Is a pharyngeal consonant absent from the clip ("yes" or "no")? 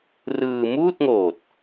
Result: yes